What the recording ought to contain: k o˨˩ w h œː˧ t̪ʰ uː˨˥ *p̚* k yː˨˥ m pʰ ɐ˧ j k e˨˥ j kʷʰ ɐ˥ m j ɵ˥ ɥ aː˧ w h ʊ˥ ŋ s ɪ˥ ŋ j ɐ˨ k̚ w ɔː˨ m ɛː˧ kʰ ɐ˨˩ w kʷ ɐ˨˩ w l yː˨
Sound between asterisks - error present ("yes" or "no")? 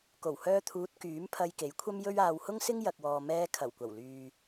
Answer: yes